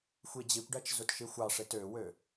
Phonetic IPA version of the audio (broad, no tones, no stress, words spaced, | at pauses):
xʷid͡ʑikʷɖæt͡ʃ zutʃixʷɑʂet øwø